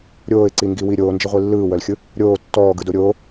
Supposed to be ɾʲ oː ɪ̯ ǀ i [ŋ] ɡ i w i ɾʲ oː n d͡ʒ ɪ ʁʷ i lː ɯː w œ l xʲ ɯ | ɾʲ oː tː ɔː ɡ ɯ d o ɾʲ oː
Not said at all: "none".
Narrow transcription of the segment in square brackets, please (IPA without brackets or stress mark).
ŋ